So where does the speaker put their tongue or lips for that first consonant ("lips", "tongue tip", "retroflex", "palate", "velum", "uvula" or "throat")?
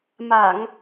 lips